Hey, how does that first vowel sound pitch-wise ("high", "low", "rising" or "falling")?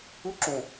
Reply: high